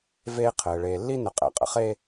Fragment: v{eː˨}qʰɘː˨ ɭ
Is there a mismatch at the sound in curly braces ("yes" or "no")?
yes